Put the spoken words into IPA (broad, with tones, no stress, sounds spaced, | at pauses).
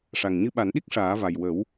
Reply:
ʂ a˨˩ ŋ ɲ ɨ˧ ɓ a˨˩˦ n ɗ i˦˥ k̚ ʂ aː˨˩˦ v a˨˩ j w ə˨˩˦ w